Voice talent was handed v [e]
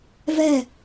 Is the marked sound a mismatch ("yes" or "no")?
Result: yes